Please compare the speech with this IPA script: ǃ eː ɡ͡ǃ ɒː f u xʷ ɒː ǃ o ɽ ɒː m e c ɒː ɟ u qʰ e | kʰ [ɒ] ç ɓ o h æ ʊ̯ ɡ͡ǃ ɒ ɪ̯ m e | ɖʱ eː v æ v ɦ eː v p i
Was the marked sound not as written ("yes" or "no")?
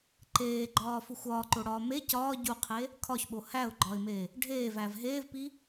no